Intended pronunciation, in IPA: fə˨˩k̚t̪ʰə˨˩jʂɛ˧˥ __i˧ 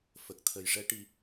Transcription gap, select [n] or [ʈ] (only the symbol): ʈ